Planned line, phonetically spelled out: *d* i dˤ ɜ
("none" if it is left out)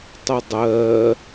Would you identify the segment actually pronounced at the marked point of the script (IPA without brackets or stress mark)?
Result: tˤ